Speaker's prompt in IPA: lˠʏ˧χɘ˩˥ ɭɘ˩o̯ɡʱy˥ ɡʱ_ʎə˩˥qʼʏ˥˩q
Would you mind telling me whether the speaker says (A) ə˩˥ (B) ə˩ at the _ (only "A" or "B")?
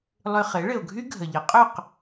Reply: B